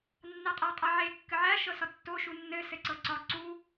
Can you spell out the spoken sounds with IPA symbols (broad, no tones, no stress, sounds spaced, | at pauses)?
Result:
nː a qʼ a qʼ a ʕ e kː ɘ ʕ æ ʃ ɤ s ɒ tː o ʃ u nː ɘ s ɘ ǀ ɤ ǀ ɒ ǀ u